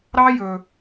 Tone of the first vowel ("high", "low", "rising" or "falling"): high